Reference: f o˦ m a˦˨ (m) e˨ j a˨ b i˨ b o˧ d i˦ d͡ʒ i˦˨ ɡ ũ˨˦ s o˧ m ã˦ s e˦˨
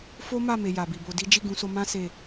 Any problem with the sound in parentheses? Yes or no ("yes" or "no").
no